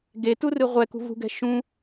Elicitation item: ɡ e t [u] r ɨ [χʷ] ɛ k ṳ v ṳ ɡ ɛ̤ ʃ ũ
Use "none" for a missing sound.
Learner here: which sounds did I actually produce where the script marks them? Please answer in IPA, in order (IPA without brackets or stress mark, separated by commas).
u, ʁʷ